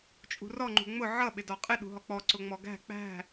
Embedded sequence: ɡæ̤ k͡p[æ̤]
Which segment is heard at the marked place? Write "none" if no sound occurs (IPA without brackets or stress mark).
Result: æ̤